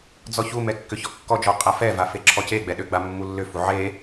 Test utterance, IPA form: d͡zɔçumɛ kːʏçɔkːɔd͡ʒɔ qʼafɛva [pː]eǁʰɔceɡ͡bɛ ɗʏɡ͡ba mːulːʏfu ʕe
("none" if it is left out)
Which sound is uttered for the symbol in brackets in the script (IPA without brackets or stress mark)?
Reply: f